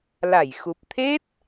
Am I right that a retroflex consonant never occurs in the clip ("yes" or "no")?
yes